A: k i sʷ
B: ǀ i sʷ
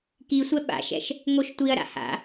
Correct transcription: A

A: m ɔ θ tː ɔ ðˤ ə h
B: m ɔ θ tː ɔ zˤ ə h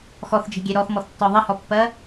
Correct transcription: A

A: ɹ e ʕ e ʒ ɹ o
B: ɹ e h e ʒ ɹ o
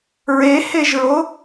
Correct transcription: B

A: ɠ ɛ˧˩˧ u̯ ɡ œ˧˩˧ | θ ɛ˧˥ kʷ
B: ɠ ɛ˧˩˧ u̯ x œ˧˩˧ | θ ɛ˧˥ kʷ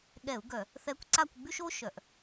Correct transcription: A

